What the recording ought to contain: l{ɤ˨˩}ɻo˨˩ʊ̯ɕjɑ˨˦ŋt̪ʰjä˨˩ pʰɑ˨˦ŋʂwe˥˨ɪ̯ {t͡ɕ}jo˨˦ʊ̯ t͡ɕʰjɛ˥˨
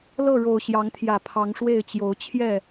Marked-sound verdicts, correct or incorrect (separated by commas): incorrect, correct